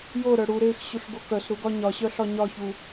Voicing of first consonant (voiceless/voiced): voiced